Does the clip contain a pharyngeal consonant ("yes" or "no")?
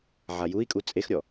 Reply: yes